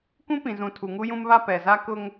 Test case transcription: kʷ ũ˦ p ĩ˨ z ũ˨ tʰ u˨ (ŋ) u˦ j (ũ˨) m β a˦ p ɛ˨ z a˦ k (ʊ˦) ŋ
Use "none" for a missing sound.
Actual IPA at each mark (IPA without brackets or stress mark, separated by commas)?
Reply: ŋ, ũ˦, ʊ˦